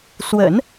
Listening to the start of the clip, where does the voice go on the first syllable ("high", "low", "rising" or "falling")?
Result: low